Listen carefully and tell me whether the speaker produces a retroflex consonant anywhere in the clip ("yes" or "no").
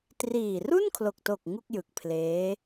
no